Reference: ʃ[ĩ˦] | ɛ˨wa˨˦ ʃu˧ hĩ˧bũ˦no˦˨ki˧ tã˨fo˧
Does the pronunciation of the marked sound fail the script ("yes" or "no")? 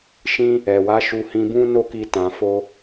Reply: no